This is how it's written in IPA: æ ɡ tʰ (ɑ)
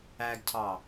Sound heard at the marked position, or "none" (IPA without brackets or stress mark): ɑ